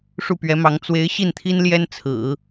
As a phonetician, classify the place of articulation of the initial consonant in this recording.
retroflex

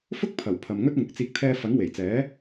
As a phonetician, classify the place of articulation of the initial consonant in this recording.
labial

